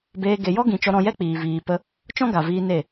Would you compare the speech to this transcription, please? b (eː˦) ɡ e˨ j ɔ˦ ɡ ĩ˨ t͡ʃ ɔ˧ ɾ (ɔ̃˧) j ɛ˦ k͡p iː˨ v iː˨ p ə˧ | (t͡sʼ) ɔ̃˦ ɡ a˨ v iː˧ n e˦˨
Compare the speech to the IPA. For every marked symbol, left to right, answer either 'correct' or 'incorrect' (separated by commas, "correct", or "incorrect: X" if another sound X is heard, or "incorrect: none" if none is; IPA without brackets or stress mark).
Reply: incorrect: eː˧, correct, incorrect: t͡ʃ